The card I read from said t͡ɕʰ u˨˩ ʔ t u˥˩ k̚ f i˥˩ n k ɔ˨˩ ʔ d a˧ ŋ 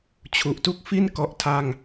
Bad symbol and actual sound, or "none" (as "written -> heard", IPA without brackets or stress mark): d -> tʰ